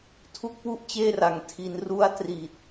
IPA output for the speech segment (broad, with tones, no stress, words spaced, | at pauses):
tʰu˥˩k̚pu˥˩ʔt͡ɕeː˥˩ ra˨˩ŋtʰi˧n ru˦˥a̯ triː˨˩t̚